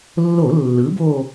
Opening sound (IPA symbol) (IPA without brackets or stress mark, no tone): lː